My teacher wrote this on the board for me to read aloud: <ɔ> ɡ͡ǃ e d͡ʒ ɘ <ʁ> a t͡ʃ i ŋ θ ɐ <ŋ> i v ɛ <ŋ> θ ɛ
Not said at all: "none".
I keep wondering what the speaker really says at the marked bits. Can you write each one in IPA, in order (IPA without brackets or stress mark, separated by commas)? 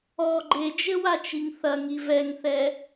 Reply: ɔ, w, ŋ, ŋ